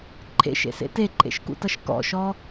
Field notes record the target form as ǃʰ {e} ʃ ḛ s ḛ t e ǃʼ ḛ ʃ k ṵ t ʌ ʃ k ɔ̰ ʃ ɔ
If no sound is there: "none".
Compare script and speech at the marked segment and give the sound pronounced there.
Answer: ḛ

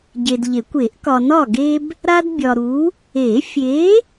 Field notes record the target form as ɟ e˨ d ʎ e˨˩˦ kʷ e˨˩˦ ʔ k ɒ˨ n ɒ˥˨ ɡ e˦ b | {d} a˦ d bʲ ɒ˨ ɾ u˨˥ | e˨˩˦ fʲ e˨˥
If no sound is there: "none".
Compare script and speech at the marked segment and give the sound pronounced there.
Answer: ɾ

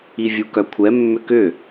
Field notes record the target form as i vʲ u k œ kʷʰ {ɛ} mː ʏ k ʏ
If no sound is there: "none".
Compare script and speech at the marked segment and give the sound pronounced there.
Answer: ɛ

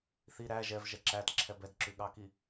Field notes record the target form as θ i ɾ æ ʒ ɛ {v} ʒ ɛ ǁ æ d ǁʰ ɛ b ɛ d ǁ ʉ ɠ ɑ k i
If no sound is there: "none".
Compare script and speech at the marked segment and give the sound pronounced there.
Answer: v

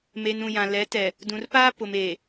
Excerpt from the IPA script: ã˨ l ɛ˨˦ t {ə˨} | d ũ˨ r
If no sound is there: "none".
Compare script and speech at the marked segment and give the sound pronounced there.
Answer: ɛ˨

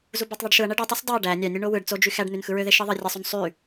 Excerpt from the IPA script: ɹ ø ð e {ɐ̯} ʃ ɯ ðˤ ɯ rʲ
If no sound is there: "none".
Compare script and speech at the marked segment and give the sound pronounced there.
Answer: none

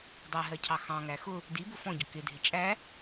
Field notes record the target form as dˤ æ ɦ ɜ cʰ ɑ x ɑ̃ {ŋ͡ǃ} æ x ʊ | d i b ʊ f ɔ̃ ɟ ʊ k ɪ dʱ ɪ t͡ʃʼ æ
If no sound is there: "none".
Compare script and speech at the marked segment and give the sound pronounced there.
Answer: ŋ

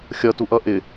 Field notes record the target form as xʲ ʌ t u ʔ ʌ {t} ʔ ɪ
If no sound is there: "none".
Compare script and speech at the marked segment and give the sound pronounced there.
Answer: none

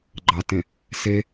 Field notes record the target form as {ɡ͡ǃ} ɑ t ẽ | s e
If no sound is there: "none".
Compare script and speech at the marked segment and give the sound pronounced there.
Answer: ɡ͡ǃ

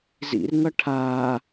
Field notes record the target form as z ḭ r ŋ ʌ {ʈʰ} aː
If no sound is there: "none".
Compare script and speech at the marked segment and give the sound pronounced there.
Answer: ʈʰ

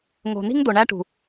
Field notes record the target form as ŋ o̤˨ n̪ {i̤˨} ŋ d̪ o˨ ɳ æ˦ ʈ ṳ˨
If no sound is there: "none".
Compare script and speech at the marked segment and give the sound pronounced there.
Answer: i̤˦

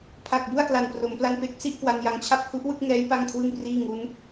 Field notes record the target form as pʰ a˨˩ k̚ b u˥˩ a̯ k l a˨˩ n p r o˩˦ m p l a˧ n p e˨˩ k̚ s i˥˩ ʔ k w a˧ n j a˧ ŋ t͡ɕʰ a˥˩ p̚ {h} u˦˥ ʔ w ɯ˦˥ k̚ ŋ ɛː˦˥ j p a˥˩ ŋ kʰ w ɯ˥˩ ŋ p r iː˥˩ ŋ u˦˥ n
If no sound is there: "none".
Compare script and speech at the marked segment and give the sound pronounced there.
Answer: h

